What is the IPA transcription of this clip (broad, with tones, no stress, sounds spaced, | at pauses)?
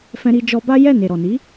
f ɛ̃˧ ɾ i˧ d͡ʒ ɔ˧ b a˦ j ɛ˦˨ n e˨ ɾ ɔ˨ n i˨˦